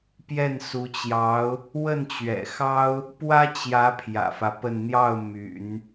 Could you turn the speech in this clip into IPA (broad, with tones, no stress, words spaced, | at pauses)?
pjɛ˥˩nsu˧˥t͡ɕjɑ˧˥ʊ̯ | wə˥˩nt͡ɕɥɛ̰˨˩xɑ˥ʊ̯ | pwä˥t͡ɕjä˧˥ pʰjä̰˨˩fä˦pə˥˧n n̪jɑ˥˩ʊ̯ my̰˨˩˦n